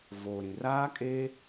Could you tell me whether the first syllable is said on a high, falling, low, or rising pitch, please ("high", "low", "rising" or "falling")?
low